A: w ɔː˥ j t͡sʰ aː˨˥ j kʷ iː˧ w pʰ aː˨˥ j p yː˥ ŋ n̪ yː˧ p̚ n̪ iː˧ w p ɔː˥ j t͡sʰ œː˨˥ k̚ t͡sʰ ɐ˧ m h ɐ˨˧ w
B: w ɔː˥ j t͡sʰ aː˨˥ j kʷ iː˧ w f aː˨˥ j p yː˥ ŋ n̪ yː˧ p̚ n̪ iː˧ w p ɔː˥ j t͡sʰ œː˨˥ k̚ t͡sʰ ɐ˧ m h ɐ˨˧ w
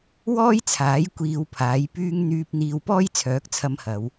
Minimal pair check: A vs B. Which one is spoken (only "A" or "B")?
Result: A